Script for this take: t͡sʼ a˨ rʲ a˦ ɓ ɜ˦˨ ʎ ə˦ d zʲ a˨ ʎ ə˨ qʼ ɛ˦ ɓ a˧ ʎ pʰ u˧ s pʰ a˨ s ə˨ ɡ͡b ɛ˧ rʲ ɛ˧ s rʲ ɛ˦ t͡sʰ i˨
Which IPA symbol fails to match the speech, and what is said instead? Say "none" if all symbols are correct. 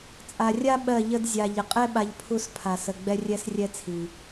none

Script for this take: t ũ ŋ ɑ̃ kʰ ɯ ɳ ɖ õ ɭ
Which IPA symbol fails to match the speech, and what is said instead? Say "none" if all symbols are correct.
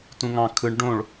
none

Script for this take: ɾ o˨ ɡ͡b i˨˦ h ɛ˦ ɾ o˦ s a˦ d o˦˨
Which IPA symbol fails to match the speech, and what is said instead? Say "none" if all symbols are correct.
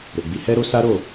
d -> ɾ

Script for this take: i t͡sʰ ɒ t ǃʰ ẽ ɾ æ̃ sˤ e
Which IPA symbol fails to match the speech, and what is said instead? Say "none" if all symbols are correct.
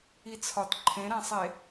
none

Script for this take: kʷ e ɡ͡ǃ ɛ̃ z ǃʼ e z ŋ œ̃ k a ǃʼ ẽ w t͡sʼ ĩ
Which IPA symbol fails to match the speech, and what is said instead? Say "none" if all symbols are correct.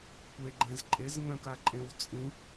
none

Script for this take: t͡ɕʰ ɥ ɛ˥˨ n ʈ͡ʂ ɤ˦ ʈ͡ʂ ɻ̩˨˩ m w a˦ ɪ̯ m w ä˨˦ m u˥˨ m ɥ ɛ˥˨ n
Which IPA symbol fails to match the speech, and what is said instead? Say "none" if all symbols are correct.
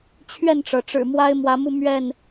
ɤ˦ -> ɤ˩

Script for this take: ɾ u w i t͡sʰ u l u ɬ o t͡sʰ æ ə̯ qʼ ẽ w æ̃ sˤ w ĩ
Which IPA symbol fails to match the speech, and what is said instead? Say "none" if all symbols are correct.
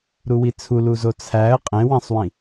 ɬ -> z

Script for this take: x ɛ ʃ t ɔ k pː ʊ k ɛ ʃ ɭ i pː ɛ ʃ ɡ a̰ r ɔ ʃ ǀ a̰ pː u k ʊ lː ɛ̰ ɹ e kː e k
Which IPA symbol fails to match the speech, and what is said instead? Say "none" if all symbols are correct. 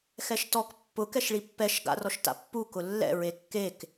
ǀ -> t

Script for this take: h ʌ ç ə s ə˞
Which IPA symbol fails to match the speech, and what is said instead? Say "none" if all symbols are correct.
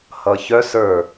ə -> œ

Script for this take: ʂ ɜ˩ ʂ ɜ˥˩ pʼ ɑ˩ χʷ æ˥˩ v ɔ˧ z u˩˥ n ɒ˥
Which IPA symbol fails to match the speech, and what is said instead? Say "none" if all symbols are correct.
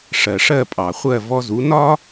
æ˥˩ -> ɜ˥˩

